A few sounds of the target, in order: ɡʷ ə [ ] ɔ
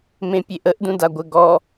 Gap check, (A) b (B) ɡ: B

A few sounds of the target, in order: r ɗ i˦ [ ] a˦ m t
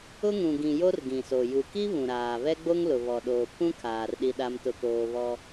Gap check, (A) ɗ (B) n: A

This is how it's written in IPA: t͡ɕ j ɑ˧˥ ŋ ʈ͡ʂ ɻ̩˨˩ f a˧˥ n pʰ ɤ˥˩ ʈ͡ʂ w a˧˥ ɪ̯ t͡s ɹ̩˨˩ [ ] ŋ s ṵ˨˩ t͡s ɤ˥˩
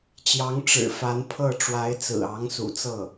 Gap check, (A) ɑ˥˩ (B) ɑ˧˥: B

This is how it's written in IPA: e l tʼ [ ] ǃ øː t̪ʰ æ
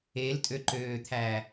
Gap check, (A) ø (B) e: A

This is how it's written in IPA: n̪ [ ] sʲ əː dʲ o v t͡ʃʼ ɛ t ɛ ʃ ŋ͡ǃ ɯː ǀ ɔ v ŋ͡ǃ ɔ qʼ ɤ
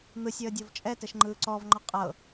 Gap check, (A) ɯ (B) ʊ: A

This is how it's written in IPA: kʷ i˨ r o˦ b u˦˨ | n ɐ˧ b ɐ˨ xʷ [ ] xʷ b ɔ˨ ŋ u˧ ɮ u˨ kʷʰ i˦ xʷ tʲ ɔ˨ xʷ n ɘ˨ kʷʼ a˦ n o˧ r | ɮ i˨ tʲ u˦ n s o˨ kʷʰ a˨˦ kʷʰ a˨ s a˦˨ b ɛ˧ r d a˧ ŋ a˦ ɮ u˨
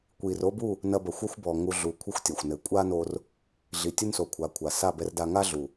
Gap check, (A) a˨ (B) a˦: B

